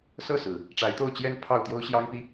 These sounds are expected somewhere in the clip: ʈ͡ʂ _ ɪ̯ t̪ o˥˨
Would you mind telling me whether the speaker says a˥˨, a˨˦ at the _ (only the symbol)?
a˨˦